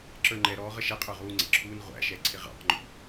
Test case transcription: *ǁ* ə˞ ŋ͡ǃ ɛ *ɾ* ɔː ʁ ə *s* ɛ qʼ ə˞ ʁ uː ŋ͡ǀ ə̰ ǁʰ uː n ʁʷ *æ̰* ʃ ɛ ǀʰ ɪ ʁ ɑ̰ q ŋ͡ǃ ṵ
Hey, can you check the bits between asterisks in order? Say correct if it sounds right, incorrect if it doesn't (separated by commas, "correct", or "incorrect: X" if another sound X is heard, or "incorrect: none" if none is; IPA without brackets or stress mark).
correct, correct, incorrect: ʃ, correct